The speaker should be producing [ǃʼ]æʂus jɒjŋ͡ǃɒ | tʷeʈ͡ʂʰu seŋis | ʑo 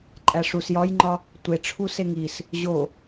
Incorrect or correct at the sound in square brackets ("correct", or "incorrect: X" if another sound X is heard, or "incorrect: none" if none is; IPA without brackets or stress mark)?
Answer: correct